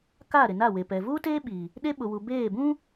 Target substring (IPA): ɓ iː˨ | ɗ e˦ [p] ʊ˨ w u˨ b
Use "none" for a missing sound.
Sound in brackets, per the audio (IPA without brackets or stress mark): ɓ